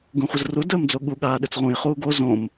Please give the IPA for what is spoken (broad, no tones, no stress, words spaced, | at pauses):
ɡũχʷəzru dəːmd͡zoɠu ɠaːɗʏt͡sʁũjχuː ɡo zõm